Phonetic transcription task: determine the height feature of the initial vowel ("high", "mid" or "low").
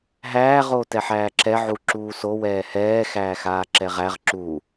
low